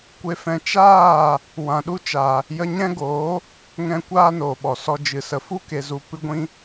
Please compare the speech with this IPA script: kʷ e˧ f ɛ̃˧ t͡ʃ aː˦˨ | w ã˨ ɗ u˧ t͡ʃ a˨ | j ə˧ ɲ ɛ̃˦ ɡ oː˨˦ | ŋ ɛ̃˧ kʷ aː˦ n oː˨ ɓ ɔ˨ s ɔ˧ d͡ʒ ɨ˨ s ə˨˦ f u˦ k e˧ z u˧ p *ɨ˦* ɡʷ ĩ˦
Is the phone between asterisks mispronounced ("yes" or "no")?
no